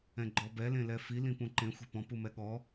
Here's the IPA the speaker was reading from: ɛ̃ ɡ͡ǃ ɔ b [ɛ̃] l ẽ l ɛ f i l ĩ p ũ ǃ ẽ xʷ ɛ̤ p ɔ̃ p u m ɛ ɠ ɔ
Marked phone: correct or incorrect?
incorrect